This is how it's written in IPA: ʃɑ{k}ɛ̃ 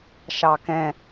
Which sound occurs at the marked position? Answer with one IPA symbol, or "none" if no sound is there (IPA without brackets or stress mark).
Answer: k